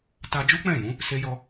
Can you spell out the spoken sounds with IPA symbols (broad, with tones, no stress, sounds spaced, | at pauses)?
t a˧ d͡ʒ u˦ k͡p ɛ̃˦˨ j ũ˨˦ | s e˦ j ɔ˦